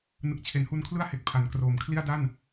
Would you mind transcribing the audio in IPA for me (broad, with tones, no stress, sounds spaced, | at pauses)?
n ɯ˨˩ k̚ t͡ɕʰ e˩˦ n h u˧ n kʰ l ɯ˥˩ a̯ h e˨˩ k̚ pʰ a˩˦ n k r oː˩˦ m kʰ l i˥˩ a̯ d a˥˩ n